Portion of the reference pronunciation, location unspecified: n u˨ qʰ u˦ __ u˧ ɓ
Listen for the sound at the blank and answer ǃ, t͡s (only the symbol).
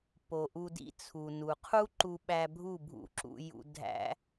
ǃ